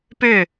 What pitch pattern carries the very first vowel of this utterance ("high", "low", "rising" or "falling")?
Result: falling